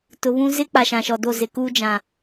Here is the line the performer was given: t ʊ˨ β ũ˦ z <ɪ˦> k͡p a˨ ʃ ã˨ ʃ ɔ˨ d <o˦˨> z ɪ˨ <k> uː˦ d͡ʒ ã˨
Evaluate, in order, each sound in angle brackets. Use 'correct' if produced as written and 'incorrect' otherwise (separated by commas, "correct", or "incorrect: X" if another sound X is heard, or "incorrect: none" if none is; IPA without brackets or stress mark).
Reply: correct, correct, correct